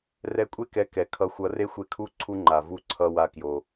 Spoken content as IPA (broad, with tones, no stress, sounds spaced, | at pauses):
r ɛ˧ kʷʼ e˦ k ɛ˨˦ k ɛ˨ kʰ ʌ˨˦ xʷ ʌ˨˦ r e˦ xʷ e˧ kʰ u˦˨ ǀʰ u˧ ŋ͡ǃ a˨ v u˦ ǀʰ ʌ˧ w a˧ k j o˨